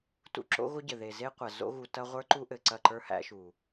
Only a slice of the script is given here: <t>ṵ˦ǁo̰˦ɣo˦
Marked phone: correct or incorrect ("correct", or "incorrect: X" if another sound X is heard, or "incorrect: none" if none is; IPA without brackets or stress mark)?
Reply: correct